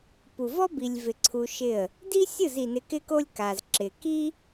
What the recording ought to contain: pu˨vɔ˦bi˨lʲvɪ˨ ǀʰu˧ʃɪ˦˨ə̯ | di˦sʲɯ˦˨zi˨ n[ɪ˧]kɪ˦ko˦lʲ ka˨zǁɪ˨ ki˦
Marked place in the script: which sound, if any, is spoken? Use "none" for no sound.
ɪ˧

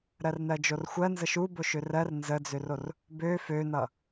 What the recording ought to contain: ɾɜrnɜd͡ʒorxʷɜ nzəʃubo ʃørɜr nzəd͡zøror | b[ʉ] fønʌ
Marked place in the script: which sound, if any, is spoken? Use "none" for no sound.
ø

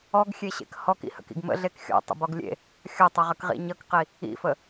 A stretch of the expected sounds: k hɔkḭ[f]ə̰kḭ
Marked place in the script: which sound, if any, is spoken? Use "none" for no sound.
h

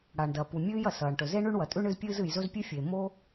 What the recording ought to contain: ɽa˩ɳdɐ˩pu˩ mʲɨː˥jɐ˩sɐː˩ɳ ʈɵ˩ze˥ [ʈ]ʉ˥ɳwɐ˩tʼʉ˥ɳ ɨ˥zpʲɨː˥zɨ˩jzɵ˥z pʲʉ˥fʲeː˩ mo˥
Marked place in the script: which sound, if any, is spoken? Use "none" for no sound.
ɳ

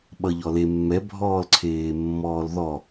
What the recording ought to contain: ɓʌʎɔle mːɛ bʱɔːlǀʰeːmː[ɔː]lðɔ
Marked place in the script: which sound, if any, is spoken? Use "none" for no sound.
ɔː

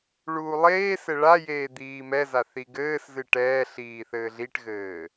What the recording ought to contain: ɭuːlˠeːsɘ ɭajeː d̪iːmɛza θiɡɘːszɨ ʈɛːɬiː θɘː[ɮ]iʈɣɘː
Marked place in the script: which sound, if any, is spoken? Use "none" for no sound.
ɮ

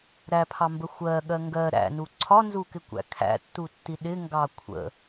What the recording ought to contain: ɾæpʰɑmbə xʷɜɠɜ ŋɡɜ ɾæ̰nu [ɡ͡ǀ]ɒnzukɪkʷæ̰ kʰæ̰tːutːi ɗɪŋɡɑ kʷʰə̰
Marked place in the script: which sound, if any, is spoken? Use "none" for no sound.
ǀʰ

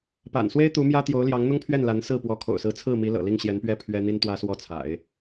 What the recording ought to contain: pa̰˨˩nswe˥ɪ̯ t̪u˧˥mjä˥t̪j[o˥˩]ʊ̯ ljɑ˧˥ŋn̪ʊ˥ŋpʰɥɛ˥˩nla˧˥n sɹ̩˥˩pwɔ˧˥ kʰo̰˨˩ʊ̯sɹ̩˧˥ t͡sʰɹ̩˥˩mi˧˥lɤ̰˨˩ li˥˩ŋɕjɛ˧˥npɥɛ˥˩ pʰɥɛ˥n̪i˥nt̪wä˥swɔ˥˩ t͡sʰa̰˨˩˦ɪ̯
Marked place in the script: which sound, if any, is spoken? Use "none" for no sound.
o˧˥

